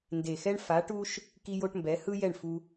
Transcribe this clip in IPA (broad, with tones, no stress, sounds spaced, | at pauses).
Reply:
n d e˨ x ɛ˦ ɳ f a˨˦ ʈ u˦ ʃ | k i˦ j o˦ ʈ m b ɛ˨˦ h ɯ˦ j ɛ˦˨ ɳ f u˧